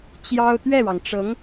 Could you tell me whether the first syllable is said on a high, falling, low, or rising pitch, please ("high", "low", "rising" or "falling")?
high